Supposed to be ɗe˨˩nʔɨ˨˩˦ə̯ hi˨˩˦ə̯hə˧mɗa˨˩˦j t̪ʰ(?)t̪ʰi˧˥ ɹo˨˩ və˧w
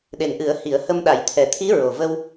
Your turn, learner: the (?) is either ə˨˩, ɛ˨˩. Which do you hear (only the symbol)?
ɛ˨˩